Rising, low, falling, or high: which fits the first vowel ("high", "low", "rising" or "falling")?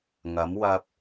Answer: rising